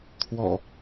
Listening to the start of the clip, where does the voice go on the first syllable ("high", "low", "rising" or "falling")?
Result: low